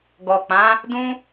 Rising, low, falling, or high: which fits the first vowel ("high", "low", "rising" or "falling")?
low